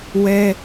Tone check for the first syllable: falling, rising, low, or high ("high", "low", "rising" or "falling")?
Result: high